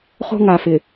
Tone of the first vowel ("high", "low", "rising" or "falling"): high